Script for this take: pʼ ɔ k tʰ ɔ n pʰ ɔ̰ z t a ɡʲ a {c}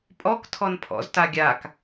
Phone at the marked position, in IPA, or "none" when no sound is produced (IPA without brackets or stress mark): k